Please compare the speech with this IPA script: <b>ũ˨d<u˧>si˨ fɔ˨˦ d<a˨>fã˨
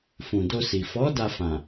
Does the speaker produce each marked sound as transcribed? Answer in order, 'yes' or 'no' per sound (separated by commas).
no, no, no